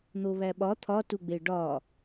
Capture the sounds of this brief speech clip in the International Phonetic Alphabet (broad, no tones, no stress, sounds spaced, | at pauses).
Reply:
n̪ o β æ ɓ ɒ t̪ʰ ɒ t u ɡ͡b e ɖ ɒ